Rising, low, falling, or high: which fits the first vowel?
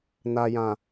low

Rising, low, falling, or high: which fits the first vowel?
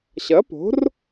rising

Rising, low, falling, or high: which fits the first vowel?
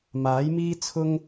rising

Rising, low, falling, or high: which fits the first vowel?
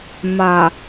low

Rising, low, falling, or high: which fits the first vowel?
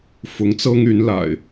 rising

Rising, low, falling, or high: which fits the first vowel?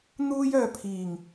high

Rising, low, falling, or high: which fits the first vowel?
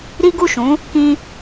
high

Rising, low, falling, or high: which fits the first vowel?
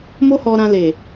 high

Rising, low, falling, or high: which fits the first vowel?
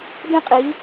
high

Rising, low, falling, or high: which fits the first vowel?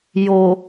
low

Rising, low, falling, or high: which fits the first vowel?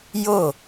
falling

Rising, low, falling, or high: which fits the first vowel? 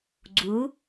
rising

